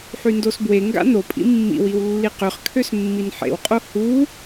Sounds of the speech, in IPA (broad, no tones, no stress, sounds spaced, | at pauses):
ħ y n d o s b w e ŋ ɡ a̰ n o pʼ ḭ mː ḭ w i w lː i q ø χ kʰ ø s mː i n ħ ḛ w qʼ o h u